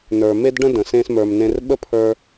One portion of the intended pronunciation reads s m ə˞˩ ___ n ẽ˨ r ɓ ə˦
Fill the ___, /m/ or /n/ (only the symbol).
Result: m